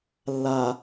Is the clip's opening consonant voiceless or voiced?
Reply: voiced